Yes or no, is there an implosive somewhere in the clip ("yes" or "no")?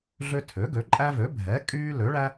no